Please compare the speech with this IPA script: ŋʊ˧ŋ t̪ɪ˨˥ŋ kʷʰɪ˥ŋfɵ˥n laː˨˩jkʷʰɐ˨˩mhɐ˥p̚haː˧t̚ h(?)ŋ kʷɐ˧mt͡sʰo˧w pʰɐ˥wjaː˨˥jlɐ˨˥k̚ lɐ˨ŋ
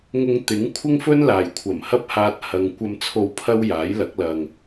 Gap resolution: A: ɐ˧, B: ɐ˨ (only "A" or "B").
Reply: A